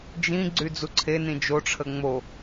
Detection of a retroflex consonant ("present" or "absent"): present